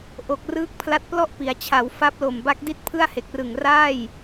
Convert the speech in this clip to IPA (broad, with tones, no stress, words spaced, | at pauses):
ʔo˨˩k̚rɯː˦˥k̚ pʰla˦˥t̚plɔ˥˩ʔpi˩˦a̯t͡ɕʰa˩˦w fa˦˥p̚lo˨˩mba˦˥k̚ di˥˩t̚pʰɯ˥˩a̯ he˨˩k̚rɯ˨˩ŋ raː˥˩j